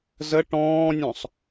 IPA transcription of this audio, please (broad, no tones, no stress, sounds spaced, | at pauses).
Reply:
z ə ʈ ɔ̃ː nʲ ɔ̃ sˤ